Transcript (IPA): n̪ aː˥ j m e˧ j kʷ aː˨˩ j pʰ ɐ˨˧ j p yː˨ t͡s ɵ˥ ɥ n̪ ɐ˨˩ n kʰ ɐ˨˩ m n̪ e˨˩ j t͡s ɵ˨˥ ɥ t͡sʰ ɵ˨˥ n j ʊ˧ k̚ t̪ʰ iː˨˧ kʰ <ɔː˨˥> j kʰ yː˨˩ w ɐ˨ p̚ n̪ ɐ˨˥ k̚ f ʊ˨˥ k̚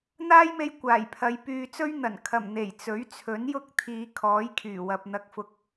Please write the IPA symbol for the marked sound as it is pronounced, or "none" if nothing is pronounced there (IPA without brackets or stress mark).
ɔː˨˥